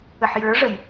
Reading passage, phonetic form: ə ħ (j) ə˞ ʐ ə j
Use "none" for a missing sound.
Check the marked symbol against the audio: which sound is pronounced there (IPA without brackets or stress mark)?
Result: j